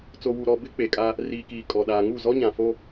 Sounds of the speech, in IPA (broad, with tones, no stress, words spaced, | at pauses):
t͡so˨wu˨ɾɔ˨ bɪ˦k͡pe˨kʼa˦ | riː˨kiː˨ kʼɔ˨ɗaː˨ŋu˦˨ zɔ˦ɲã˨ fo˦